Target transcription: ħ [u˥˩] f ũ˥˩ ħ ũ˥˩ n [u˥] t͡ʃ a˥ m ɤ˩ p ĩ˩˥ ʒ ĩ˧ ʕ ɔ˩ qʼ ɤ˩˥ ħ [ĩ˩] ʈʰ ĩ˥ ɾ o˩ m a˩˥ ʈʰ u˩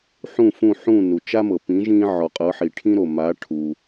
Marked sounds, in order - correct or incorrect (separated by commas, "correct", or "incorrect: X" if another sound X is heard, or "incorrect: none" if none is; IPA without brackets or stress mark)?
incorrect: ũ˥˩, incorrect: u˩, incorrect: i˩